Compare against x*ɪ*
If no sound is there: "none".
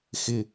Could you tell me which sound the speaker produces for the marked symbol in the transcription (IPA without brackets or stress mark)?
ɪ